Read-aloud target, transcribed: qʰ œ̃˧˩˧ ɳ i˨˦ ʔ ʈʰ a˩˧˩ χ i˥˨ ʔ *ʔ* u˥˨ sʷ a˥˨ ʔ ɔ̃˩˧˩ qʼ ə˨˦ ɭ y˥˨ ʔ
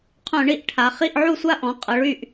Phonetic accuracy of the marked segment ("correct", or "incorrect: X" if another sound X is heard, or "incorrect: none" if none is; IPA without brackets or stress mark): incorrect: ʕ